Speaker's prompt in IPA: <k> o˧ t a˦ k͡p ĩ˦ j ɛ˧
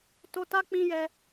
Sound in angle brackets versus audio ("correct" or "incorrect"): incorrect